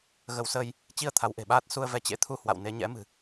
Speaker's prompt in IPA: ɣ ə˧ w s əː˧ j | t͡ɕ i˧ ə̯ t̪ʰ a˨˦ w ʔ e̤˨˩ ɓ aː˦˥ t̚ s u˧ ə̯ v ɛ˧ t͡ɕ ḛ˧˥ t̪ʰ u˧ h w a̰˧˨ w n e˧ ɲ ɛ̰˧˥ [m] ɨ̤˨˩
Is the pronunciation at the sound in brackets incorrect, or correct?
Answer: correct